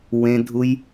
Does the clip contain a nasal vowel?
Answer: yes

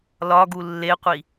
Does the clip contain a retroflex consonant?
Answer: no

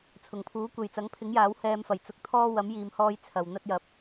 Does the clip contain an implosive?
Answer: no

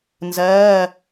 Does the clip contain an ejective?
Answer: no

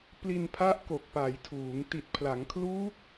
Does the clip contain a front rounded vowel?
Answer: no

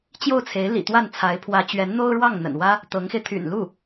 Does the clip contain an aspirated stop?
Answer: yes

